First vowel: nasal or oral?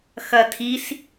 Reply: oral